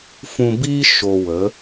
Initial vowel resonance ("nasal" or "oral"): nasal